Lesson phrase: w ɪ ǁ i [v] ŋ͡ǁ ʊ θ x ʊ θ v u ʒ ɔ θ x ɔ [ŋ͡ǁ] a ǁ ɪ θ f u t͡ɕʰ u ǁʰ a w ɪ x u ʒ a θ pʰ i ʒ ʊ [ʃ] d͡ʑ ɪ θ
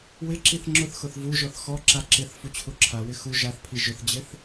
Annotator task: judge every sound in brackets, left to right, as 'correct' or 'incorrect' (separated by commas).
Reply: incorrect, incorrect, incorrect